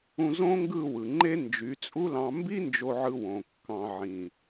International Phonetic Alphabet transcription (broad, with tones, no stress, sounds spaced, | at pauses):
ũ˧ z õ˦ ŋ ɡ ɯ˦˨ w ɯ˨ ŋ͡ǃ e˦ n d͡ʒ y˨˦ t͡sʼ u˦ l ɑ̃˧ m b i˦ n d͡ʒ o˧ ʕ ɯ˧ w õ˨ kː ɑ̃˧ ʕ ĩ˨